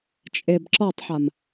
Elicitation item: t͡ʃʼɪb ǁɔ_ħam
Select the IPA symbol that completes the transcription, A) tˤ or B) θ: A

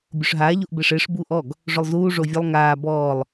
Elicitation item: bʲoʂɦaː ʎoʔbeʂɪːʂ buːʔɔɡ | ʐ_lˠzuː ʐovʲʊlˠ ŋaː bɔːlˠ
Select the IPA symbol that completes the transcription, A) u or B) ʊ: B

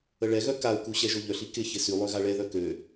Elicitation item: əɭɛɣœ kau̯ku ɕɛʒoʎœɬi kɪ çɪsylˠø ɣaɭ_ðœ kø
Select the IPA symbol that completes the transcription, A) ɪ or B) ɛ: B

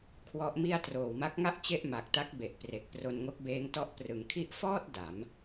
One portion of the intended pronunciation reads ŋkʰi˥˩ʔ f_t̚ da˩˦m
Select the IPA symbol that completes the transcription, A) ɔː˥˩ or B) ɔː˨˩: A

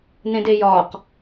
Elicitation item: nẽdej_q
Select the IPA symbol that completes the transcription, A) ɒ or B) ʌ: A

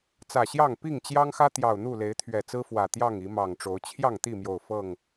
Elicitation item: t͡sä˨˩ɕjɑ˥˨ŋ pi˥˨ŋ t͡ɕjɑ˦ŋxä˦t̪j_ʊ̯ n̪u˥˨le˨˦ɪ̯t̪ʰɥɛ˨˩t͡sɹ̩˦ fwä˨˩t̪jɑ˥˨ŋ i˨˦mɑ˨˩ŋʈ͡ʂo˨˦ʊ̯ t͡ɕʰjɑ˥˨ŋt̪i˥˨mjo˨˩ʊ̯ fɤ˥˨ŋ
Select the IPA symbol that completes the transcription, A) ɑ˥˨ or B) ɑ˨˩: B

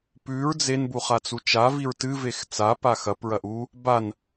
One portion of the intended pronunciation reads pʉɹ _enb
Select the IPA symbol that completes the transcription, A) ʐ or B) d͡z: B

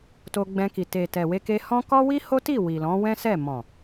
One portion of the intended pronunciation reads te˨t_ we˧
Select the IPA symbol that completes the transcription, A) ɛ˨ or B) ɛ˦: A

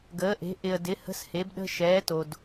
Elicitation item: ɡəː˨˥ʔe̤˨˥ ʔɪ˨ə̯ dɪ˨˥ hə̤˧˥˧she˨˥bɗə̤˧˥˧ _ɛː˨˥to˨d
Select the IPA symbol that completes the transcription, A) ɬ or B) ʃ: B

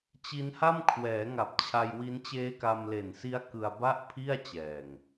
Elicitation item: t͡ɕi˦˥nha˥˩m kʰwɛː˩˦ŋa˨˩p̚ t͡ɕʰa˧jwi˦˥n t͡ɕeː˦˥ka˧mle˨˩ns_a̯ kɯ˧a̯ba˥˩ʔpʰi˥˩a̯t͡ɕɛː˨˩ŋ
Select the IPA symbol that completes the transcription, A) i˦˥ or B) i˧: A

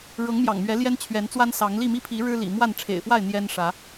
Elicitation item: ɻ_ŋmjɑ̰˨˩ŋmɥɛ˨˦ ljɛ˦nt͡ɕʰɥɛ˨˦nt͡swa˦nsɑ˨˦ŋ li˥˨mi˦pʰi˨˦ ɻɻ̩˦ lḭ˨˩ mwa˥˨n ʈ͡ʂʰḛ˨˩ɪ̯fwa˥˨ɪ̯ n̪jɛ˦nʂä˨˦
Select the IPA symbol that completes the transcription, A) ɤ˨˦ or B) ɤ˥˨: A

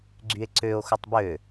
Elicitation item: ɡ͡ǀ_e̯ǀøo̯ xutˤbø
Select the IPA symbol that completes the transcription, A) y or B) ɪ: A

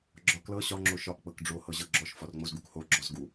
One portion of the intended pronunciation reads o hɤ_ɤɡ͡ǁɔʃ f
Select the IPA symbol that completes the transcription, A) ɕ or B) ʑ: B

